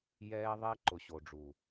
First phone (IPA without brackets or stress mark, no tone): j